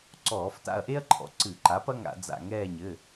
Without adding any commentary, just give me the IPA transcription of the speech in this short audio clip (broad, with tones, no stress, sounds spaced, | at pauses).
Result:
ǀ ɔː˧˩˧ f t a̰˦˨ ɐ̯ ʔ e˥ ɐ̯ ǃʰ ɔ̰˩˥ ǀ ɨ˧˩˧ ǃ a˩˥ p ɐ˥ ŋ a̰˧˩˧ d͡z a̰˦˨ ŋ ɛː˦˨ ɲ ɘ˩˧˩